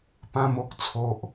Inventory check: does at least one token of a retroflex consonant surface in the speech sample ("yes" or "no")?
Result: no